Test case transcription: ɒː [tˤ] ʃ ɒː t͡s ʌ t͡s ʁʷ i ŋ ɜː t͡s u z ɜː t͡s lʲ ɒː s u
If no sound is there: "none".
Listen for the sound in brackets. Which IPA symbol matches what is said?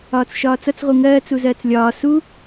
t͡s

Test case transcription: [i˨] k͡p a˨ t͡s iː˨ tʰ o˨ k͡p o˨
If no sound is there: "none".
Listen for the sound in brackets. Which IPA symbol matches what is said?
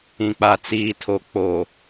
ĩ˨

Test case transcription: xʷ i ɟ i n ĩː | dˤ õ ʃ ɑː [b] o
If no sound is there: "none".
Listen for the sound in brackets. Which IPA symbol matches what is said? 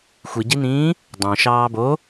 b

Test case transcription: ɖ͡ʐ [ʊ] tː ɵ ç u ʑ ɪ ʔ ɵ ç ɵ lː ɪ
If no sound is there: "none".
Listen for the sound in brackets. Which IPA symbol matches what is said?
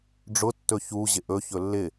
ʊ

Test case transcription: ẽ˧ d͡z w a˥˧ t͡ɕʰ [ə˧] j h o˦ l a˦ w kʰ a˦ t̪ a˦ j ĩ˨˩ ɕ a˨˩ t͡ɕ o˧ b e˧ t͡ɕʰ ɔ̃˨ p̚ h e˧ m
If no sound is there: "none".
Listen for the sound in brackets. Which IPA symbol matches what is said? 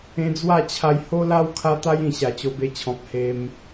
a˧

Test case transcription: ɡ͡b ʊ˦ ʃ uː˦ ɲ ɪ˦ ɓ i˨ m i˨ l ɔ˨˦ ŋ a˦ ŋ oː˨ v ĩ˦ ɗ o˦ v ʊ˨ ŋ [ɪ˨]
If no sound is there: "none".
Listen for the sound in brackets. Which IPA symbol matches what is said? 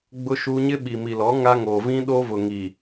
i˨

